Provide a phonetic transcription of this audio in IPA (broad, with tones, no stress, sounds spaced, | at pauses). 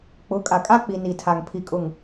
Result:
k͡p ʊ˨˦ kʼ a˨ kʼ a˦ k͡p i˨ n i˨ tʰ a˨ ŋ pʰ i˨ kʼ ʊ˨ ŋ